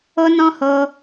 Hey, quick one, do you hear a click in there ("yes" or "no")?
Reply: no